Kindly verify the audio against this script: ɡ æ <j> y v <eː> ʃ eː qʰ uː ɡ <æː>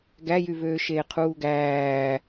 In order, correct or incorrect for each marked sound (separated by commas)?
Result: correct, incorrect, correct